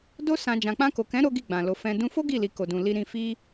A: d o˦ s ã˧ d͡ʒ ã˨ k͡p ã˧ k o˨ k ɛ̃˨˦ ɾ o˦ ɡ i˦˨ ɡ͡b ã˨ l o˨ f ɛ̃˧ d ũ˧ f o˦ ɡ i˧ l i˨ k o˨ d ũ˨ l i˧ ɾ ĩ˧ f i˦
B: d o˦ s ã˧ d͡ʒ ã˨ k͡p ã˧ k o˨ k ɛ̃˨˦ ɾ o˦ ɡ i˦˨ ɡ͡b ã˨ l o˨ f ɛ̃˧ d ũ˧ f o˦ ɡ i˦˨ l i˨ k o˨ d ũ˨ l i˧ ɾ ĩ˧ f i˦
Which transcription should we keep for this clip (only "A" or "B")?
B